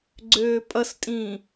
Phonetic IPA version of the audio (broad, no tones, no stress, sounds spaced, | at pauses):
ɡ͡ǀ øː pʼ ʌ s tʼ ĩː